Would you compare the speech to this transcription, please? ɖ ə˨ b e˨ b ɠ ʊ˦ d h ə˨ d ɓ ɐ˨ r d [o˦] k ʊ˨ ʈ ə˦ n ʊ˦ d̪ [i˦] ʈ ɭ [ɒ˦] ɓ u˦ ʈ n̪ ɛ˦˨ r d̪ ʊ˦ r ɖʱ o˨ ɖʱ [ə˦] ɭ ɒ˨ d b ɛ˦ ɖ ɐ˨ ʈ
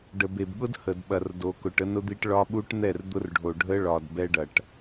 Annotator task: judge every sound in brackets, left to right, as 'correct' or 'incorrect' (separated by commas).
incorrect, correct, correct, correct